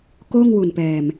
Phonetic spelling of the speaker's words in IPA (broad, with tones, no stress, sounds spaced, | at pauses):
k oː˥˩ ŋ w u˨˩ n p ɛː˨˩ m